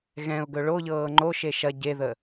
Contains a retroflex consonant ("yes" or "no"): yes